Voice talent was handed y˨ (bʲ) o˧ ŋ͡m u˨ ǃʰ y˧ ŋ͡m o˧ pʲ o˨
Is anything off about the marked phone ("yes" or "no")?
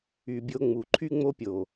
no